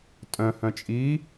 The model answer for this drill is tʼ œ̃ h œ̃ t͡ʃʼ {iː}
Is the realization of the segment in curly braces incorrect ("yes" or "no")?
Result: no